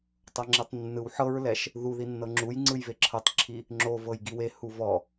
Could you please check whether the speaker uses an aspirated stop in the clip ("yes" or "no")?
yes